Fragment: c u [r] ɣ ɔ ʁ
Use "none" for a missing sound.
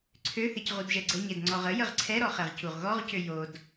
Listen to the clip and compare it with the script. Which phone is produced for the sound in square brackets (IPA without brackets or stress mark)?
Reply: ʁ